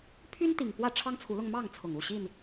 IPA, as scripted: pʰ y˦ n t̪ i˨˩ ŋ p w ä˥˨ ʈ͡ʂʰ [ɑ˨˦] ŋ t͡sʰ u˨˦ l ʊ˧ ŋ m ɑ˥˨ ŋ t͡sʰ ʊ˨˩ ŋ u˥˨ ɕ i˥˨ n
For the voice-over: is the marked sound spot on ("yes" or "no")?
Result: no